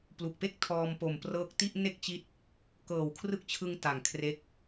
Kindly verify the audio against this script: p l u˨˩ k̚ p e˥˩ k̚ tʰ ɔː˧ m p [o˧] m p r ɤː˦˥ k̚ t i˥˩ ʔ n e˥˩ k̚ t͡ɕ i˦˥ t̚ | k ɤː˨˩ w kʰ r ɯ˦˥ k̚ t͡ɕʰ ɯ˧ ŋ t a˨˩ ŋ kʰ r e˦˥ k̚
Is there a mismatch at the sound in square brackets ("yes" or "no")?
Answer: yes